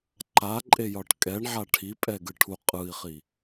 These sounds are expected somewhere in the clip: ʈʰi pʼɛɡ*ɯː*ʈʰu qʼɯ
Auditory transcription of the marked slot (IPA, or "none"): ɯ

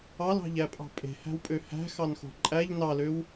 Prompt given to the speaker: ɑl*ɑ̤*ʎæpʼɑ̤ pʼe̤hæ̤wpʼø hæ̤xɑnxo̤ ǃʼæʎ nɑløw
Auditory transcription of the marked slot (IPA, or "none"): ɑ̤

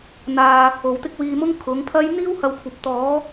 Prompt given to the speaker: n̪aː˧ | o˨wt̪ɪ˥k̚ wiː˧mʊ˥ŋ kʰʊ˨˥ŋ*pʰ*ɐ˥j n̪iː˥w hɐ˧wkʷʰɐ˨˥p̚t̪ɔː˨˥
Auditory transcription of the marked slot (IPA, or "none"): pʰ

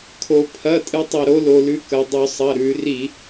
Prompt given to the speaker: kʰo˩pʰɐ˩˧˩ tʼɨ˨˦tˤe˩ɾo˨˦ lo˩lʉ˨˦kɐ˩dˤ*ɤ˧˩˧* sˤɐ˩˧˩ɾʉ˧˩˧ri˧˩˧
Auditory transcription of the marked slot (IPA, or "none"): ɵ˧˩˧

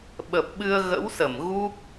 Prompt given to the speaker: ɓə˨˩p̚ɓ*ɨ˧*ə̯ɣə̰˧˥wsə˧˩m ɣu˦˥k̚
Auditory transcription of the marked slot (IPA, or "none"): ɨ˧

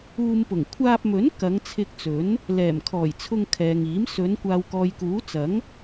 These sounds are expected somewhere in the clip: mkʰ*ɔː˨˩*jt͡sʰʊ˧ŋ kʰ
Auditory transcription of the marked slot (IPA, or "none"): ɔː˨˩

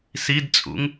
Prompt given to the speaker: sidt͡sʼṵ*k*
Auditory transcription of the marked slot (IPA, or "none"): ŋ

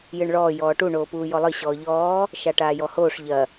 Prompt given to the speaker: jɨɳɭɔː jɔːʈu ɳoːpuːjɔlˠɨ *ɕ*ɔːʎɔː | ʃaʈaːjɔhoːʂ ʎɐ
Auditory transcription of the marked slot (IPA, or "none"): ɕ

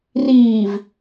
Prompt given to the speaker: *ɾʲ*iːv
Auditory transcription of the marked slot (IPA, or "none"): r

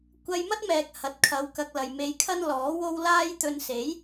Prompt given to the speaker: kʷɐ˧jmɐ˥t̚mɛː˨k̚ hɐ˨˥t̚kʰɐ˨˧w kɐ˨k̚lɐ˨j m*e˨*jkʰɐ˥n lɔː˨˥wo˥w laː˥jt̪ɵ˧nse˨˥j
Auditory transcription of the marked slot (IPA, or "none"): e˧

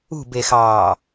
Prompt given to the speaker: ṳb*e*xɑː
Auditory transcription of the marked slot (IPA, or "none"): e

